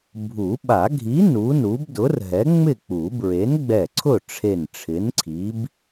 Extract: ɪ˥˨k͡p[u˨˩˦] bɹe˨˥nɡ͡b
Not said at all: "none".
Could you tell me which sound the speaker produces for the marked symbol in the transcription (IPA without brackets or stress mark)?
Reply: u˨˩˦